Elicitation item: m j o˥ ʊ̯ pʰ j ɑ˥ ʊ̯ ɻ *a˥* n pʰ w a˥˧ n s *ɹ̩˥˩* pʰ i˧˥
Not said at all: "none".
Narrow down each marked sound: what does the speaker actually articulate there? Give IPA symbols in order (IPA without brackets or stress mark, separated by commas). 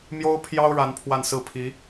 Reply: a˥, ɹ̩˥˩